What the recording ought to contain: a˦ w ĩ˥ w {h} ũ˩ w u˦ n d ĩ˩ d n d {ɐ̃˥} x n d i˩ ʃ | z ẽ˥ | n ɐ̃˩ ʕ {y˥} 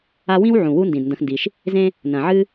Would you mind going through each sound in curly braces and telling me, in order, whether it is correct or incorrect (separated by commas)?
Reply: incorrect, incorrect, incorrect